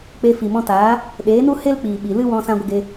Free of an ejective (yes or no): yes